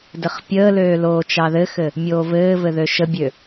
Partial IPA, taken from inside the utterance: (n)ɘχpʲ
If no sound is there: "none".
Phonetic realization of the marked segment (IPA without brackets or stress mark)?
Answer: d